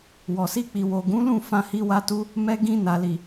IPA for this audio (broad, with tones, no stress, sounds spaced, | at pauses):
w ɔ˨ s i˧ k͡p i˨ w o˨ ɡ ũ˨˦ l ũ˦˨ f ã˧ h i˧ w a˧ t u˧ | m ɛ˧ ɡ ĩ˧ n a˨ l i˨